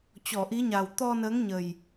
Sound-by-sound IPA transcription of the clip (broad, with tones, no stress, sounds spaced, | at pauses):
t͡ɕ ɔ˧˩ ʔ i˨˦ ɲ a˨˩ w t̪ ɔ˧ n əː˨˦ ŋ ɲ ə˨˩ j